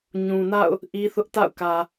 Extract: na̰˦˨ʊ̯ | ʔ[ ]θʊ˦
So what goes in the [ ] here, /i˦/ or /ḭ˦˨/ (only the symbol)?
i˦